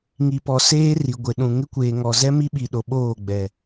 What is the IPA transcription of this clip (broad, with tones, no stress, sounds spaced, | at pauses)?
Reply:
ŋ i˨ p ɔ˨ s eː˦ r i˨ ɡʷ ɪ˨ ɗ ũ˨ ŋ ɪ˦ kʷ eː˨ ŋ ɔ˨ z ɛ˦ m i˦ ɓ i˨ ɗ o˨ ɓ oː˦˨ ɡ͡b ɛ˨